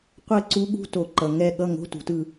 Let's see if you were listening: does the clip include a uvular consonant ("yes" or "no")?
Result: yes